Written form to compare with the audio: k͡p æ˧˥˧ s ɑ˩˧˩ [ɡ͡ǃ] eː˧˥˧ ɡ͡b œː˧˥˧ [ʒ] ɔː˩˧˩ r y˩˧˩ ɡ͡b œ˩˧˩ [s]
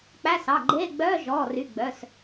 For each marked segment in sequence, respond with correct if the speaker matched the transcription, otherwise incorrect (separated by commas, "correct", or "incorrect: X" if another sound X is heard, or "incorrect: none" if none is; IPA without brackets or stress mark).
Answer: correct, correct, correct